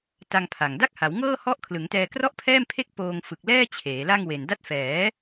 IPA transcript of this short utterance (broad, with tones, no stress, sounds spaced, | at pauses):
t a˧ ŋ pʰ a˨˩ ŋ d a˥˩ k̚ h a˩˦ w ŋ ɤː˥˩ h ɔ˦˥ ʔ kʰ l ɯ˩˦ ŋ t ɛː˧ k r ɔ˥˩ ʔ pʰ ɛː˥˩ m pʰ e˥˩ k̚ p oː˧ ŋ f ɯ˨˩ k̚ l ɛː˥˩ t͡ɕʰ eː˩˦ l a˥˩ ŋ w e˨˩ n d a˦˥ t̚ f ɛː˩˦